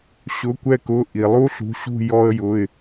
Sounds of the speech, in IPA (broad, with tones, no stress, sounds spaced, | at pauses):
ɕ ʊ˩˧˩ kʷ ɛ˦˨ k ʊ˩˧˩ ʔ i˩ lˠ u˦ ɬ ṳ˩˧˩ ɕ ṳ˦˨ j ɔ˦ ə̯ j ʊ˩˧˩ ɪ̯